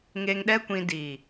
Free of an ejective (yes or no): yes